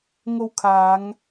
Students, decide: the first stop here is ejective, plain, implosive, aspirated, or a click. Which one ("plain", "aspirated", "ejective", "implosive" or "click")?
aspirated